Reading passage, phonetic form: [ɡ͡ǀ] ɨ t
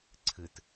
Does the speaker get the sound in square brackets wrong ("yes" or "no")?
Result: yes